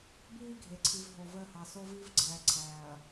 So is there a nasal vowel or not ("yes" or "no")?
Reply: no